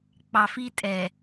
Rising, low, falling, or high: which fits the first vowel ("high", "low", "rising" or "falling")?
low